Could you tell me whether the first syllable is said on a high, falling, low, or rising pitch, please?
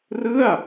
falling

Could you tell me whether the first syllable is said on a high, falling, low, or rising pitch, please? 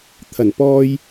low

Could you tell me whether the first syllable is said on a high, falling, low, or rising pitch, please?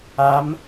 rising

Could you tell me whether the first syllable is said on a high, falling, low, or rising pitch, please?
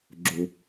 low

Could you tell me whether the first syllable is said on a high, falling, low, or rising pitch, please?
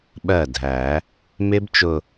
falling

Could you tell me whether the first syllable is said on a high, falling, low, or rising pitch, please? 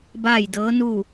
falling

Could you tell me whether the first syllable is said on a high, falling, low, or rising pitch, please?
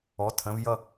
rising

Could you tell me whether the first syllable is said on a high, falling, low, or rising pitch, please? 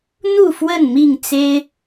falling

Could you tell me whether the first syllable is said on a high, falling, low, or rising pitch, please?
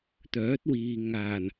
rising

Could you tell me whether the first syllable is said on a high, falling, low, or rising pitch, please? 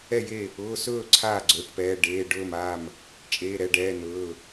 falling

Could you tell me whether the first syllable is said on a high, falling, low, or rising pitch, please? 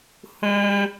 high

